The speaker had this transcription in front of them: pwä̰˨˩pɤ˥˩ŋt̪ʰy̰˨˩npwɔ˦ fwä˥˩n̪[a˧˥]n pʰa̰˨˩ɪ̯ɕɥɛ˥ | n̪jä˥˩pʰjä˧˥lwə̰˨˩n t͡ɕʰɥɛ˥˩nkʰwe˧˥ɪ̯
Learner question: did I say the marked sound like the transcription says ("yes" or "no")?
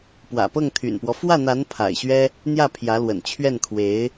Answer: yes